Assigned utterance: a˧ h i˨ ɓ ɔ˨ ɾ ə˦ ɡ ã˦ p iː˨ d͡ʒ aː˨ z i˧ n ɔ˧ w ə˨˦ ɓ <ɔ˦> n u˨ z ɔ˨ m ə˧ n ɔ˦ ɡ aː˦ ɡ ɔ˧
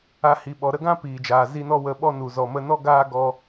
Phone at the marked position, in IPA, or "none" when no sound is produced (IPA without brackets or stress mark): ɔ˦